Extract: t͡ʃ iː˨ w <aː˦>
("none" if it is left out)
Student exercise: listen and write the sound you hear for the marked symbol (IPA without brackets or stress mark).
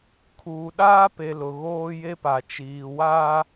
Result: aː˦